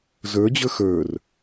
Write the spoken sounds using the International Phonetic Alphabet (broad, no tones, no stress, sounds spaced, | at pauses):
z ə˞ d͡ʑ ə˞ x ə˞ r